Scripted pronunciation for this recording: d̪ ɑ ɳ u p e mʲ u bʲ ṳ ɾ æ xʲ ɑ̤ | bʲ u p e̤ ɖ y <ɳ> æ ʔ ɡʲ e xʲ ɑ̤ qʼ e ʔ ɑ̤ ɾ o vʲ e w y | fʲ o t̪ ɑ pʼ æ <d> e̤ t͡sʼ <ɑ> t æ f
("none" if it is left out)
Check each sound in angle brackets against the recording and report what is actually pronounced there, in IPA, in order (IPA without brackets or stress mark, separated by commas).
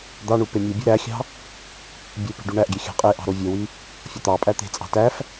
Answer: ɳ, t̪, ɑ̤